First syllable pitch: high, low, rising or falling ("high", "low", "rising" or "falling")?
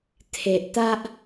low